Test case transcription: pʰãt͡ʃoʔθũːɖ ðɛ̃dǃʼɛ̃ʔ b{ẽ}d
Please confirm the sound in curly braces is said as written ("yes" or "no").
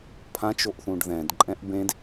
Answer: yes